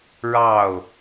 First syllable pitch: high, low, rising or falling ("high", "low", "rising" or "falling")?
falling